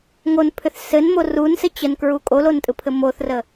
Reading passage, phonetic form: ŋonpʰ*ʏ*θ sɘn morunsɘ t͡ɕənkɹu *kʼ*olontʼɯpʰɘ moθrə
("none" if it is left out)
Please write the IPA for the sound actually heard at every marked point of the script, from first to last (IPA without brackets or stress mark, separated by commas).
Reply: ʏ, kʼ